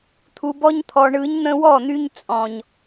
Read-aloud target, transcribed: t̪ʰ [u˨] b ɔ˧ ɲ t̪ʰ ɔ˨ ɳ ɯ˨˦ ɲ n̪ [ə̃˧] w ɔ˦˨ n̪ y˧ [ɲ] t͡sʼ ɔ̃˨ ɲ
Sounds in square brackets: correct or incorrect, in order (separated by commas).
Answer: correct, correct, correct